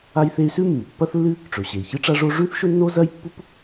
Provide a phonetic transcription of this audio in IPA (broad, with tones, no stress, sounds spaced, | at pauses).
a˥ j θ e˥ y̯ s ʉ˥ mː ɨ˩ pː ɐ˥ θ lː ɨ˥ | ʈ͡ʂ ɵ˩ ɕ e˩ i̯ ç ɨ˥ ʈ͡ʂ a˥ ʐ o˥ ʐ ʉ˥ θ ʃ ɵ˥ nː o˥ z ɐ˥ j pː u˥ p